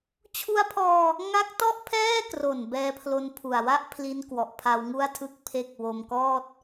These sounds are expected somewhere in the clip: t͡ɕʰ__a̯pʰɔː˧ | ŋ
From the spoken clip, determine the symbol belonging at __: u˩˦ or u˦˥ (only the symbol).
u˦˥